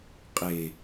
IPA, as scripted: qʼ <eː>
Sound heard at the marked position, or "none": e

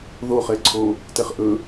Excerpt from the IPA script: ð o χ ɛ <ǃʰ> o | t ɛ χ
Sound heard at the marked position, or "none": ǀʰ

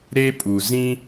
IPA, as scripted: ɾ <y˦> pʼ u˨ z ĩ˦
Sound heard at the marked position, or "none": e˦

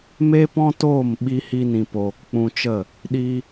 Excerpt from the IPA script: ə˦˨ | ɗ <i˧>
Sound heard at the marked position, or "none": i˧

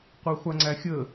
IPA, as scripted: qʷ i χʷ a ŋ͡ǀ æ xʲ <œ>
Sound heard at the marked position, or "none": ə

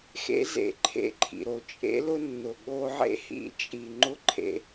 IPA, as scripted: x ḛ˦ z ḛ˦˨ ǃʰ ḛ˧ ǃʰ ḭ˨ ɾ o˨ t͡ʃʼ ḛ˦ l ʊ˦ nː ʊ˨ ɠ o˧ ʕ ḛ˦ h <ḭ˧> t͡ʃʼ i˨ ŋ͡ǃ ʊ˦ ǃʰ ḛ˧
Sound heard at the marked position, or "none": ḭ˧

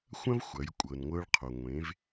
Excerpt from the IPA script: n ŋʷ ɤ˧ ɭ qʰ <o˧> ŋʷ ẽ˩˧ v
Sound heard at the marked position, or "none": o˩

